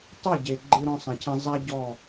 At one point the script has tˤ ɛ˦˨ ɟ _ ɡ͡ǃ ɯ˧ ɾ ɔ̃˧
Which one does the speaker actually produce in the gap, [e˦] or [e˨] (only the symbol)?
e˨